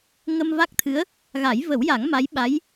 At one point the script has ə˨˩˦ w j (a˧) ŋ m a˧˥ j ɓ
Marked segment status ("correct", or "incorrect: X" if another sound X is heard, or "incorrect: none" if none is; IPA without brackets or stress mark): incorrect: a˨˩˦